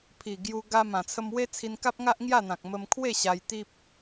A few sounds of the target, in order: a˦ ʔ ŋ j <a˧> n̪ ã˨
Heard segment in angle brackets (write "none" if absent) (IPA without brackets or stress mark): a˥˧